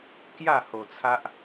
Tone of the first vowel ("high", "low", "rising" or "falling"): falling